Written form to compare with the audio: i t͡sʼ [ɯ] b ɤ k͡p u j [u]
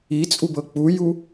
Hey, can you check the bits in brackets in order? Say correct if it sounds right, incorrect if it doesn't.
incorrect, correct

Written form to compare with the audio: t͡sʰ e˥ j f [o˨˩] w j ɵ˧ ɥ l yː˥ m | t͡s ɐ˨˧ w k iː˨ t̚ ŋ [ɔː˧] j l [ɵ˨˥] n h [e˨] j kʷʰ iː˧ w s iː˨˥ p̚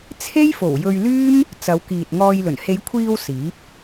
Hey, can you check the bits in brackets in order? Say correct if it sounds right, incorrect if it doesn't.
correct, correct, incorrect, incorrect

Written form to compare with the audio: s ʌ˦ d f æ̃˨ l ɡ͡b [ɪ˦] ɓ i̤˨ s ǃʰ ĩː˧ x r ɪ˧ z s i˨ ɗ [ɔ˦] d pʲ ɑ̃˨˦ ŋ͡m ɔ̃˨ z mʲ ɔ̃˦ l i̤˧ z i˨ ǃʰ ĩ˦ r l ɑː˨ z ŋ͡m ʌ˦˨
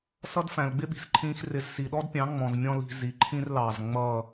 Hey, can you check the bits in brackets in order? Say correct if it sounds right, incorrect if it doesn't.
correct, correct

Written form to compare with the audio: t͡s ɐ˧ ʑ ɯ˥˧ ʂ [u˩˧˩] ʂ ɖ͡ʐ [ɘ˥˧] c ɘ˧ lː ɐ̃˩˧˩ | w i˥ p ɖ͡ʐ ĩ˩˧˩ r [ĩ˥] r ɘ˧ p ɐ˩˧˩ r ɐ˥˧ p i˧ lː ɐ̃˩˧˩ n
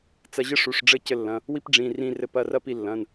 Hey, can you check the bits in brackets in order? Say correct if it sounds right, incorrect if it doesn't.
correct, correct, incorrect

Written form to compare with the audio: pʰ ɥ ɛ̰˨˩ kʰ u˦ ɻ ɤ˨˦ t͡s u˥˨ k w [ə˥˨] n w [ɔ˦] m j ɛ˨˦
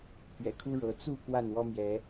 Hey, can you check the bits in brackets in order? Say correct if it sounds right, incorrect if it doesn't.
incorrect, correct

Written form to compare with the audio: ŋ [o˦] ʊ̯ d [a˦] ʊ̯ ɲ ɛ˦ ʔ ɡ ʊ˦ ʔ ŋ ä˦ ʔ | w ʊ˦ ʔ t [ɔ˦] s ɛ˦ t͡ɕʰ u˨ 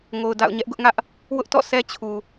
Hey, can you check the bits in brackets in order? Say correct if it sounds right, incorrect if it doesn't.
incorrect, incorrect, incorrect

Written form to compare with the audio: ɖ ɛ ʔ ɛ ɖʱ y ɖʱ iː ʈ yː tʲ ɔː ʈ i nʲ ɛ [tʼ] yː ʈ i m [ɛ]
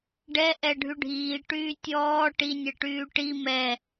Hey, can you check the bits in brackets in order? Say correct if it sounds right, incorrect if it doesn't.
incorrect, correct

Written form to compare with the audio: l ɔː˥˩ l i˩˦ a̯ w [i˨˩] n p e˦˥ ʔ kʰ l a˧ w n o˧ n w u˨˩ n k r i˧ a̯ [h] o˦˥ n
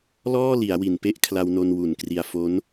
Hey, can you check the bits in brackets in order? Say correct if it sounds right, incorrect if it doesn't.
correct, incorrect

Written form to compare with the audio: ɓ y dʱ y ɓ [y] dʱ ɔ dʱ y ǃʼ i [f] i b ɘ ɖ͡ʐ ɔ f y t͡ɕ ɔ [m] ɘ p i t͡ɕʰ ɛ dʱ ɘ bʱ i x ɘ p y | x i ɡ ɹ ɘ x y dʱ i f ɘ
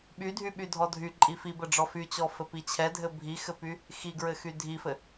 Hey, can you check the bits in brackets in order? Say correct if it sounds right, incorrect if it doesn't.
correct, correct, incorrect

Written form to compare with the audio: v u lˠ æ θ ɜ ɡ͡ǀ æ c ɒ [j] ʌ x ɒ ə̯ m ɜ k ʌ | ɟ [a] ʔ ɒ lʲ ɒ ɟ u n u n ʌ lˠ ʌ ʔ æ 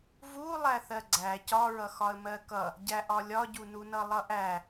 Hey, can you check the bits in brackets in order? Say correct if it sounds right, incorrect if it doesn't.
incorrect, incorrect

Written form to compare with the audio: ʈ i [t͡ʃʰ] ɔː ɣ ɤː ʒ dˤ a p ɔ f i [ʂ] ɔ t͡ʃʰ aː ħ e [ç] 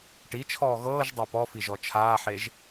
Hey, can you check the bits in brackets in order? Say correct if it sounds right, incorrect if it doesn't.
correct, incorrect, incorrect

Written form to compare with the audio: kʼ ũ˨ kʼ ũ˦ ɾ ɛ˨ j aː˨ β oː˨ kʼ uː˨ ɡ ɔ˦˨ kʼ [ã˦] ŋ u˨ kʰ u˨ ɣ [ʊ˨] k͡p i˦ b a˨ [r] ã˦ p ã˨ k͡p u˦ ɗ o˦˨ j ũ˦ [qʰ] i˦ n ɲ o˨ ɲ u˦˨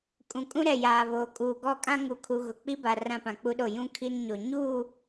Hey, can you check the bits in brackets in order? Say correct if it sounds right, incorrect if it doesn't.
correct, correct, correct, incorrect

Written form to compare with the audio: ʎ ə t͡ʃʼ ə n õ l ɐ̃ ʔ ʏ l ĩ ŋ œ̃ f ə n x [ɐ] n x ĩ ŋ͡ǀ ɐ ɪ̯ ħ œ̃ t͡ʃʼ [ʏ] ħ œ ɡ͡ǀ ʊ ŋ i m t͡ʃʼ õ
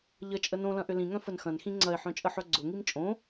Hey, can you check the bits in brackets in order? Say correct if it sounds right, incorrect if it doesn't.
incorrect, incorrect

